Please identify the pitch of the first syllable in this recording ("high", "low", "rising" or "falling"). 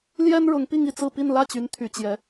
high